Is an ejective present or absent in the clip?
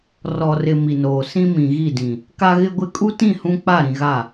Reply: present